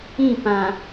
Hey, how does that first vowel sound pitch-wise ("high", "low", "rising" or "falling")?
falling